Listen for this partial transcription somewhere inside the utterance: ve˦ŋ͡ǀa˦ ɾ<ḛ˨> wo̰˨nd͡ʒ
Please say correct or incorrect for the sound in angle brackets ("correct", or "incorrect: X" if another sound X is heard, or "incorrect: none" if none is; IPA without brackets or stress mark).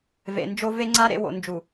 correct